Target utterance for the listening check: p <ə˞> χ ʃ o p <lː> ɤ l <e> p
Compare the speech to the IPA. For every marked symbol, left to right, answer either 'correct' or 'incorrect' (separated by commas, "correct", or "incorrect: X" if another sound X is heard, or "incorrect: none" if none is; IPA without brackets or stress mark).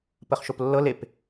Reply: incorrect: ə, correct, correct